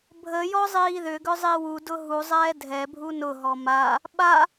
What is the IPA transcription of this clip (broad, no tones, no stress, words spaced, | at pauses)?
bʱəjɔ zˤiːðʏɡʏ zˤiwudʊ ɦuzˤɛː dʱɛbʱu nʊɦɔ ma | ɓa